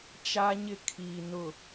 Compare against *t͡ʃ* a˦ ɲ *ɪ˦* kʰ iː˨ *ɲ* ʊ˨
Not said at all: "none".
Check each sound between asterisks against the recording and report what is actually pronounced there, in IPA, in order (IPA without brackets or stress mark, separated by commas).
t͡ʃ, ɪ˦, n